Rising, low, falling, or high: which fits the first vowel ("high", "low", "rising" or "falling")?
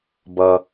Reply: low